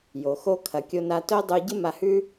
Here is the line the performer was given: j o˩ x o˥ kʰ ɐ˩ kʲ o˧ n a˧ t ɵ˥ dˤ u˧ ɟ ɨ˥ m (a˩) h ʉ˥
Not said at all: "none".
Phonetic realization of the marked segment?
a˧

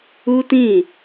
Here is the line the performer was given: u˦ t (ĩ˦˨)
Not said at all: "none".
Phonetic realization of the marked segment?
ĩ˦˨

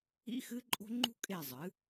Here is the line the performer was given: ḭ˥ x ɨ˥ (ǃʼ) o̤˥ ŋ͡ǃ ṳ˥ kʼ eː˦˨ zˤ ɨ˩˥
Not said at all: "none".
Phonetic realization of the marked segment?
ǃʼ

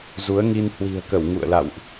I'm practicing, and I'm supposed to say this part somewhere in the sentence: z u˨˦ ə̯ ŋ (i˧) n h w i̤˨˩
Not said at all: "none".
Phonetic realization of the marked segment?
i˧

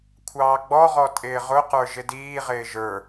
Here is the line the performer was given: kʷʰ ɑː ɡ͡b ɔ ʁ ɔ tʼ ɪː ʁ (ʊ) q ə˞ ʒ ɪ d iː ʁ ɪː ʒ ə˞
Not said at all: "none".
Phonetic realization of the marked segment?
ʊ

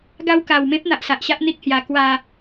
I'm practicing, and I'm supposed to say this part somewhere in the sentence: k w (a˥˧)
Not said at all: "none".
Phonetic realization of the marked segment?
a˥˧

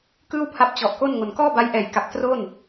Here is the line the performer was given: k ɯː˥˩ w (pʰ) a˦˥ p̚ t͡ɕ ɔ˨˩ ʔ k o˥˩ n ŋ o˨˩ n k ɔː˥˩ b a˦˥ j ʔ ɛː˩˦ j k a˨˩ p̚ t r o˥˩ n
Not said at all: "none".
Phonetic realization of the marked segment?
pʰ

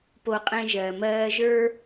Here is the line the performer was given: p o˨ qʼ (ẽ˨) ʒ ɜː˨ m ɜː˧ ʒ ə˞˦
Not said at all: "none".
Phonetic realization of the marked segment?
ẽ˨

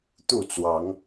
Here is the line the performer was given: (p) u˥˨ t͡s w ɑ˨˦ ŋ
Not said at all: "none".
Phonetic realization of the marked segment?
t̪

